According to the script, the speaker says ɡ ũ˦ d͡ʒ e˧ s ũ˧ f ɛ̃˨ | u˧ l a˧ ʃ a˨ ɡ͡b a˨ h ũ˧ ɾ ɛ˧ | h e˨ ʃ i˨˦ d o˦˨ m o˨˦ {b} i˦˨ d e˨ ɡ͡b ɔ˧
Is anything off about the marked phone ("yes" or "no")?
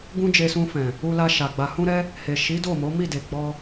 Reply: yes